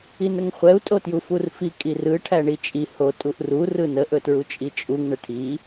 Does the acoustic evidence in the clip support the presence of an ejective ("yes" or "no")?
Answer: yes